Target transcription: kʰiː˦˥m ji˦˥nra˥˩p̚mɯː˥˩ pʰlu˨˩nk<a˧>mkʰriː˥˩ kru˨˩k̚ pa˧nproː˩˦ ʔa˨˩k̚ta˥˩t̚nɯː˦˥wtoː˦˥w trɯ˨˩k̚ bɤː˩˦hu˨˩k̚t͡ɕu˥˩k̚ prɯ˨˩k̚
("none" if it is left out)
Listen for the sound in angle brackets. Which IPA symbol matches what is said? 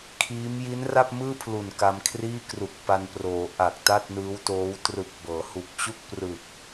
a˧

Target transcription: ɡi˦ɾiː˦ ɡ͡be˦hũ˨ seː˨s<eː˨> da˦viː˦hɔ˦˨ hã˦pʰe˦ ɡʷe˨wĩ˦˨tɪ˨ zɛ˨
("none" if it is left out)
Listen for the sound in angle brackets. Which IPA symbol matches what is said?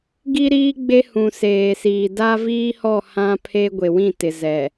iː˨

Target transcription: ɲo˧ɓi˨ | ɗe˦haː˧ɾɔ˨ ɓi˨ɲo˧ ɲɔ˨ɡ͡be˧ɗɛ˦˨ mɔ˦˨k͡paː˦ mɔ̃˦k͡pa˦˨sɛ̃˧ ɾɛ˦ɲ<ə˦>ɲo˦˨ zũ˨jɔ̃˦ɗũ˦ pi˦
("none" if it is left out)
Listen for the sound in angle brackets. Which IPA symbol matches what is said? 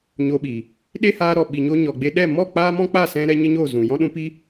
ə˦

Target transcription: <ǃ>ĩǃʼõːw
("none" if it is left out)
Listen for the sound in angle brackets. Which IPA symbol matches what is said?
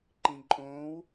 ǃ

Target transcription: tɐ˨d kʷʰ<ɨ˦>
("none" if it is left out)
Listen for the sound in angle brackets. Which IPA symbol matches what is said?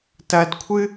ɨ˦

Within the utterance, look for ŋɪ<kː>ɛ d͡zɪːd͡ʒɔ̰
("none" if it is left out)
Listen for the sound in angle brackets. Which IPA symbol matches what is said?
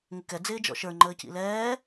k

